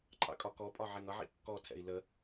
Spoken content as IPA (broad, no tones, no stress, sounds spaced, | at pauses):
ǃʼ ɑ̰ kʼ ɒ k ɔ pʼ ɒ ʕ ɛ ŋ ʌ ʕ ḭ kː ɔ tʰ ɛ̰ i̯ l ə